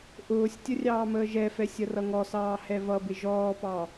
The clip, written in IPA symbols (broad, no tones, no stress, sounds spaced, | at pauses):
ʔ ʊː sʲ tʲ ə rʲ ɑː m əː ʒ ɛ f ɛ sʲ ə r ʌ ŋ ɔ s ɑː h ɛ v ʌ b ɪ ʒ ɔː p ɑ